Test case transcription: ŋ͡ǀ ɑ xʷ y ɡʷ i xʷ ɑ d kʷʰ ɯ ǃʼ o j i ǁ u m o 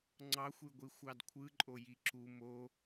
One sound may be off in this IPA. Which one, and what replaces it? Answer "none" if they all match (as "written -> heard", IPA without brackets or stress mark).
none